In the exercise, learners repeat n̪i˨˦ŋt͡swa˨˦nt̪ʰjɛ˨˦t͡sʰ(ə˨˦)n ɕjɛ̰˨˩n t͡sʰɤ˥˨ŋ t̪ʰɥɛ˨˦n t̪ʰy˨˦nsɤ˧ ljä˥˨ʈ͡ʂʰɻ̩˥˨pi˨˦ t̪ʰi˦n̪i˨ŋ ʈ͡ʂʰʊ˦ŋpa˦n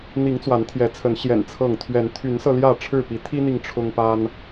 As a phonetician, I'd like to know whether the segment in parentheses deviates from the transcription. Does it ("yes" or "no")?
no